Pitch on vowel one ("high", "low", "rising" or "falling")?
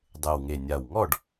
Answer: low